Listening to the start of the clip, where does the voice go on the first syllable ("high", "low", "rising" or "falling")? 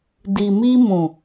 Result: low